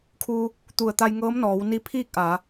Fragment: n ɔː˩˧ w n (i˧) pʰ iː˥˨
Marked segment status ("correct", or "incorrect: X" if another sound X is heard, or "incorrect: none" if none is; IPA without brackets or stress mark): incorrect: i˧˥